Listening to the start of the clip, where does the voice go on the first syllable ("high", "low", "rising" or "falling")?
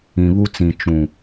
low